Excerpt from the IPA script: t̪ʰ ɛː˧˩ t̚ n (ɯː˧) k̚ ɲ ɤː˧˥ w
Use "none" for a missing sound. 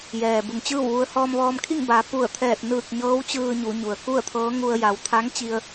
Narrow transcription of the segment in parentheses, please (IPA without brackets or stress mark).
ɯː˧˩